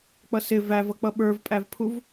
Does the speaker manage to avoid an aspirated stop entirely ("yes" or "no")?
no